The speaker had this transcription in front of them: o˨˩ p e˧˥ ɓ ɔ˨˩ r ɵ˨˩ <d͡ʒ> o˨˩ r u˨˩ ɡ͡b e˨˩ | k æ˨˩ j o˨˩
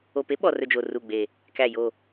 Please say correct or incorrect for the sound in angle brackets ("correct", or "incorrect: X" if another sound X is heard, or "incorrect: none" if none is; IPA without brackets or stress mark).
correct